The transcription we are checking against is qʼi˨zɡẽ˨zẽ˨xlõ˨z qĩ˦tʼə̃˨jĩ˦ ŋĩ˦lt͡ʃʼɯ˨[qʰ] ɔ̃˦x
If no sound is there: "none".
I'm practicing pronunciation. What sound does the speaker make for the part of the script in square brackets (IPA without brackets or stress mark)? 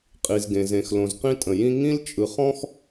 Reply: χ